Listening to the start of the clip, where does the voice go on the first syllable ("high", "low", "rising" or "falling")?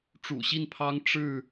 low